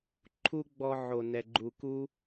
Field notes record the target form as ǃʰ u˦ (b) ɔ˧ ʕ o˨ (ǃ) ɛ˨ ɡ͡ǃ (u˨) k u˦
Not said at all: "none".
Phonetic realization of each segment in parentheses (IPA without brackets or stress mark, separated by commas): ɡ͡b, n, u˨